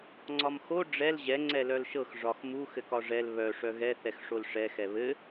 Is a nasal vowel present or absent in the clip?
absent